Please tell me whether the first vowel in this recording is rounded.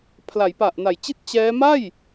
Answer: no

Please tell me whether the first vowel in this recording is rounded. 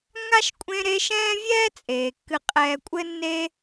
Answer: no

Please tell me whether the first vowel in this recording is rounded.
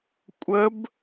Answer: no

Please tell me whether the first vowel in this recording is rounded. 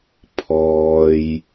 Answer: yes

